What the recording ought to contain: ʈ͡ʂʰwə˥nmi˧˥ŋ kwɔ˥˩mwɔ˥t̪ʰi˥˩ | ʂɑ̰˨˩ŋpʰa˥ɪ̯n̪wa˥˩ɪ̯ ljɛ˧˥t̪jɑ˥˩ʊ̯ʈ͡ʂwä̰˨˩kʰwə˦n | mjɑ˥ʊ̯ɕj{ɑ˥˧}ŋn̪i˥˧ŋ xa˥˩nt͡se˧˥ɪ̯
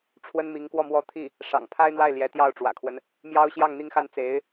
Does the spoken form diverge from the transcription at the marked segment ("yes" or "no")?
no